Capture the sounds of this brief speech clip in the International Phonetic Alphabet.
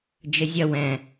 d͡ʒ ɘ zʲ ɐ w ɛ̃

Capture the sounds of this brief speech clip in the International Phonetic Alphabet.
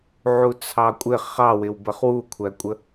ʕ u t͡sʰ ɑ kʷʼ ɪ χ ɑ w ɪ w b ə χ w u kʷʰ æ kʷʼ ə

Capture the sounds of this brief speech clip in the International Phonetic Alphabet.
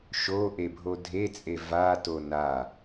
ʃ o ʔ e bʱ o dʱ e t͡sʼ e v a t o n a

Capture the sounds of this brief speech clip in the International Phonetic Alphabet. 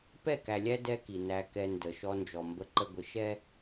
p ɛ˦˨ k æ˨ lʲ æ˦ d ɛ˦ k i˨ n æ˦ k ɛ˦ n d ə˨ ʃ ɔ˦ n d͡ʒ ɔ˨ m b ə˦ ǃ ə˦ ɡʷ ɪ˨˦ ʃ ɛ˦

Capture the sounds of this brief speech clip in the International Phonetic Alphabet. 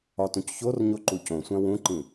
ɒ t ũ c ç o r ɲ o ǃ u c õ sʷ æ̃ w ũ ǃ ĩ

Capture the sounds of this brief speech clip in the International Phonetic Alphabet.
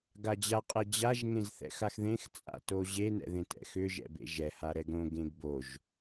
ɡ a d͡ʑ a qʼ ɛ d͡ʑ a ʒ ŋ ẽ z θ ɛ̰ x a x ð ẽ x t͡sʼ a̰ t o ʑ e n ɛ̰ ð ẽ t ɛ̰ x ʏ ʒ ɛ̰ b ḛ ʒ ɛ h a ɾ ɛ ɡ ɾ õ ɡ ẽ ɡ b o ʒ

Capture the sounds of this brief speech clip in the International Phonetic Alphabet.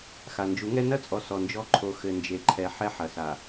x a˨ n d͡ʒ u˨˦ ŋ ɛ˦ n ɐ˦ t͡sʼ ɔ˨ s ɔ˨ n d͡ʒ ɔ˦ ǃʰ o˨˦ x ɘ˨ n d͡ʒ e˨ ǃʰ ɛ˨ ħ ɛ˦ ħ ɐ˨ s a˨

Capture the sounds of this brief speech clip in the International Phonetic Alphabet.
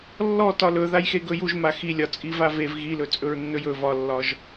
lː ɔ t ɒ l ɵ ð a j x e ɡ ɵ j u ʒ m a x i lʲ ɒ t͡sʼ i v a v e v ɣ i l ɵ t͡sʼ ɵ ɹ nː ɵ j ɵ v ɒ lː ɒ ʒ

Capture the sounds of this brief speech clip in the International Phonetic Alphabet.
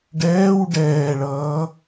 ɖ ɛː w ɖ ɛː ɭ ʌː

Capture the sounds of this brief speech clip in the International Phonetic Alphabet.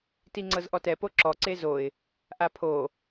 t i ŋ͡ǀ ɤ z ʔ ɔ t ɛ p o ǁ ɔ ǀ e z o ɪ̯ | ʔ a pʰ o

